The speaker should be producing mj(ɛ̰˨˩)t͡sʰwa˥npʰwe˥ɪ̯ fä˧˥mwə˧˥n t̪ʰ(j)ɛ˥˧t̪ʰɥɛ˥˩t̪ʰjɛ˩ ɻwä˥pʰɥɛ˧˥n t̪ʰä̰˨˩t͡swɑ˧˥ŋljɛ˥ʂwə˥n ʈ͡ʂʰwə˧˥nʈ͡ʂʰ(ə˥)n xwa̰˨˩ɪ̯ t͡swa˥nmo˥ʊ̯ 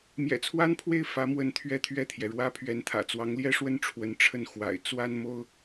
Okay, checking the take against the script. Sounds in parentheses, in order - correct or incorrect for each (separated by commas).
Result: correct, incorrect, incorrect